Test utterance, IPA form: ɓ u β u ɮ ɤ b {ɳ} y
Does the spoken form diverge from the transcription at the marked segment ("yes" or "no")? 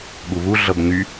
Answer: yes